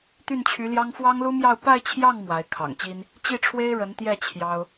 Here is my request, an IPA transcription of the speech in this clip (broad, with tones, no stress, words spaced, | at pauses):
t̪y˥˩nt͡ɕʰy˧˥ljɑ˥ŋ fwɑ˥ŋlu˥mjɑ˥˧ʊ̯ pa˥˧ɪ̯t͡ɕʰjɑ˥˩ŋ mwa˧˥ɪ̯ kʰɑ̰˨˩ŋt͡ɕi˥n | t͡ɕi˥˩ʈ͡ʂʰwe˥ɪ̯ ɻə˧˥nt̪jɛ˥˩ t͡ɕʰjɑ˥ʊ̯